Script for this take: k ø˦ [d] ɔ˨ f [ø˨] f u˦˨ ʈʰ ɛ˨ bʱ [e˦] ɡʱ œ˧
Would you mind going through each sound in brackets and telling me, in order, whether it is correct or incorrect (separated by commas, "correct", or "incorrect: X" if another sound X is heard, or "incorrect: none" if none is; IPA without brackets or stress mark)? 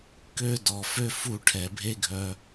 correct, incorrect: ø˦, correct